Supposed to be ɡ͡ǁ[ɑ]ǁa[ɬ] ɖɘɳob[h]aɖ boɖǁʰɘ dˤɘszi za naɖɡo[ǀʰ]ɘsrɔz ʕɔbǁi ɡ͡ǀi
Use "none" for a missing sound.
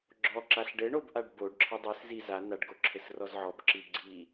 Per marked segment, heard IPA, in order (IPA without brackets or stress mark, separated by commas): ɔ, ɬ, ʔ, ǁʰ